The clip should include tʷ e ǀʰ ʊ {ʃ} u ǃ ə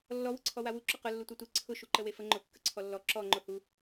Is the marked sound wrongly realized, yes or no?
no